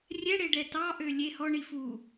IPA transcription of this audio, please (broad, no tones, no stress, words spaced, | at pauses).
rʲɛɽeɖɛ tɑʔø lʲe hɔɳi fu